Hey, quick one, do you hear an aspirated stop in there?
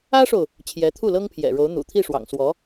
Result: yes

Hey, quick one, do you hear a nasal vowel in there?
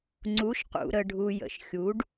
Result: no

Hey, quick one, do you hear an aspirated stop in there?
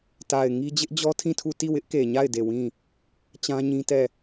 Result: yes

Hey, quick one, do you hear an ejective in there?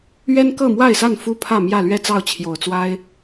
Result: no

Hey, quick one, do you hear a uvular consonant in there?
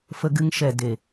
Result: no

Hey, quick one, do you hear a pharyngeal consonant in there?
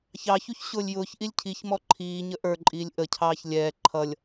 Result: no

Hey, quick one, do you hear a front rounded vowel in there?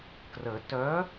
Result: yes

